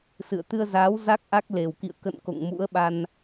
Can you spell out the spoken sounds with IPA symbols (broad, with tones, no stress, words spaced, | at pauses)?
sɨ̰˧˨ə̯t̪ɨ˧ə̯zaː˨˦w za˦˥k̚ʔa˦˥k̚ le˨˩wkḭ˧˨ə̯ kə̰˧˨n ko̰˧˨ŋmṵ˧˥ə̯ɓa˧n